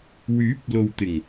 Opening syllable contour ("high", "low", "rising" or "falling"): rising